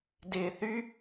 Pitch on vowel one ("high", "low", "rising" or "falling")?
low